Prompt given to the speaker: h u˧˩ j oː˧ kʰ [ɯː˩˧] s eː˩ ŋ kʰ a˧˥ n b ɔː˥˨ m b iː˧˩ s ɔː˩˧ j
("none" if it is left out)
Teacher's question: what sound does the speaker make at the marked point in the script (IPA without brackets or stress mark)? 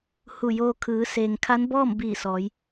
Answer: ɯː˩˧